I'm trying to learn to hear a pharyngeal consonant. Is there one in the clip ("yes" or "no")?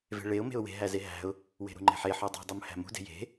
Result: yes